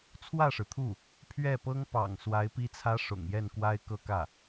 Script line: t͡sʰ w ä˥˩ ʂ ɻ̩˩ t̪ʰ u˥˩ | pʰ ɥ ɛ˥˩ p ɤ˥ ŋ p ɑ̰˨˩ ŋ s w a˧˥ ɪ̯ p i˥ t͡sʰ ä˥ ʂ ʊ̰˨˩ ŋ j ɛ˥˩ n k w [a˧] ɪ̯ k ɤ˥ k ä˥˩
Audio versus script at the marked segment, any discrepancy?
yes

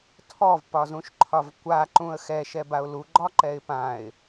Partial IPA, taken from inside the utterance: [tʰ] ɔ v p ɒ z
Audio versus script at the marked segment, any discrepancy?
no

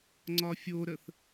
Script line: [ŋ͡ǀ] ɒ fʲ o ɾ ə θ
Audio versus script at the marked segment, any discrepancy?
no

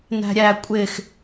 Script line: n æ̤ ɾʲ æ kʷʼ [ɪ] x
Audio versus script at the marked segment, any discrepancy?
no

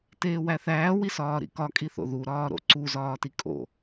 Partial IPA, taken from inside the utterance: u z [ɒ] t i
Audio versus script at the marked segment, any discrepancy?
yes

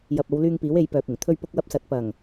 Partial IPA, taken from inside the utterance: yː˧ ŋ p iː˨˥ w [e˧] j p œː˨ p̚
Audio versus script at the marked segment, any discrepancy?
yes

